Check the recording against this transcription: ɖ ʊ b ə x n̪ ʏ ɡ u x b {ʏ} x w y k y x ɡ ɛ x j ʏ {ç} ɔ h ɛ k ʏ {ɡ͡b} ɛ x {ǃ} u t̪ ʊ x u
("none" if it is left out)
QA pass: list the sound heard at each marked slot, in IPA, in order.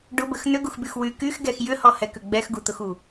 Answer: y, h, ɡ͡b, ɡ

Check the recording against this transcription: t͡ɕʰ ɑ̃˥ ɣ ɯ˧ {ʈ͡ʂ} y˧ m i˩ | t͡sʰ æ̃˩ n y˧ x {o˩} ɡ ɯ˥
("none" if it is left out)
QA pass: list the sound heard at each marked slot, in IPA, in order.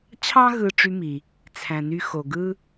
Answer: ʈ͡ʂ, o˩

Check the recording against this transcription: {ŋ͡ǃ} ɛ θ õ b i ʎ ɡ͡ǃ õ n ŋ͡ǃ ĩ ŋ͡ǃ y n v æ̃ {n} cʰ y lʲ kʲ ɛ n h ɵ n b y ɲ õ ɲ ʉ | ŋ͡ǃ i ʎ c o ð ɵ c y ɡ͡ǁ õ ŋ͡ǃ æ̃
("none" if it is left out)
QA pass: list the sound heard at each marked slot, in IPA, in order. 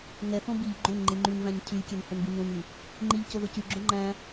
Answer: ŋ, ɲ

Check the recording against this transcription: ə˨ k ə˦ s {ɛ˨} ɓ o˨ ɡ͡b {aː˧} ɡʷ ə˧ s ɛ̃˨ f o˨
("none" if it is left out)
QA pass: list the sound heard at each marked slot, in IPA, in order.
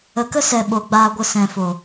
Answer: ɛ˨, aː˧

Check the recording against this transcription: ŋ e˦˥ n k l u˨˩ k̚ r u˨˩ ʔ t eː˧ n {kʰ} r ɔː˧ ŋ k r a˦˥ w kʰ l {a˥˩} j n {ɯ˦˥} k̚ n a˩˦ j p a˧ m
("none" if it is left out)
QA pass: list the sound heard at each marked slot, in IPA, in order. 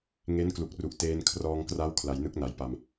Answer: kʰ, a˩˦, ɯ˦˥

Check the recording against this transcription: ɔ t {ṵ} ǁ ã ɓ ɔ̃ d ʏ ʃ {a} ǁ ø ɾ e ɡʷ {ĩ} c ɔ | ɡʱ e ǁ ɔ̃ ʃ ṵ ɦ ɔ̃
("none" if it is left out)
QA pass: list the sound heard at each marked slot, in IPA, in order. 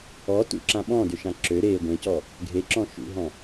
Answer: ṵ, ã, ẽ

